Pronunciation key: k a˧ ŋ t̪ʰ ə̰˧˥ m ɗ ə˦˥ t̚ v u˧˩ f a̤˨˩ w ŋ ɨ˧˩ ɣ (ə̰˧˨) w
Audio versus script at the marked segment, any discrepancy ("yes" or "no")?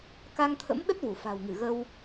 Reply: yes